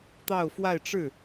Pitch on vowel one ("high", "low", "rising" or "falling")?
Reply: falling